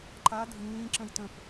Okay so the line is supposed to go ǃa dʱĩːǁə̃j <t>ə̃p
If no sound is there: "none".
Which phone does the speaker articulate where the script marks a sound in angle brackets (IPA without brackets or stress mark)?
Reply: t